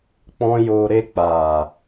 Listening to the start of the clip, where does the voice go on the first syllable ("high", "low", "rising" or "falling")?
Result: high